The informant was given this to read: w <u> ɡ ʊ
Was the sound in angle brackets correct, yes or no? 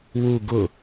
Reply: yes